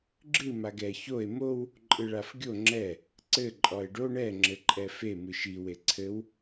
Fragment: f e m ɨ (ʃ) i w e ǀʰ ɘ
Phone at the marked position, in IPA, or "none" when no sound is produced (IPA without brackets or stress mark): ʃ